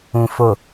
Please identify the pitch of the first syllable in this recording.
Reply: low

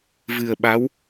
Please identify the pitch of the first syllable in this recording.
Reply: low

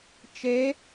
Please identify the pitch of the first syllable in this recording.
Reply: rising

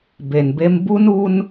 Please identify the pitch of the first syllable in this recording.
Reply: low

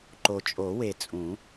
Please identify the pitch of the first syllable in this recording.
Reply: low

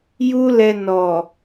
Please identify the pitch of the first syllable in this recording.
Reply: high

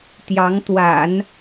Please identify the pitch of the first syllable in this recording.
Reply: rising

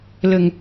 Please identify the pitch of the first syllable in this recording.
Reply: low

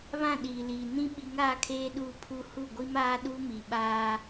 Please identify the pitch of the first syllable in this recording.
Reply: falling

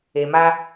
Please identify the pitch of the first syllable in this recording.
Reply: low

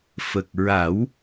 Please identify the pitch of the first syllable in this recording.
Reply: low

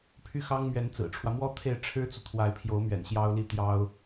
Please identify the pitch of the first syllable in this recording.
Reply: falling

